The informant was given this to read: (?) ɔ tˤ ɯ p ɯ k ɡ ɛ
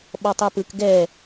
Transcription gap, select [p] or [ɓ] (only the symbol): ɓ